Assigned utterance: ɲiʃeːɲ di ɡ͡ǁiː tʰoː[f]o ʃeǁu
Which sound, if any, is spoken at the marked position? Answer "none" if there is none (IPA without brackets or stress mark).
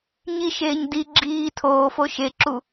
f